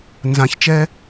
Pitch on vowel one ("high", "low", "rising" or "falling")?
rising